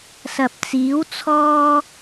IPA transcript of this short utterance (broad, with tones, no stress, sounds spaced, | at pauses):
s ɐ˨ p̚ t͡s iː˨˥ w t͡sʰ ɔː˥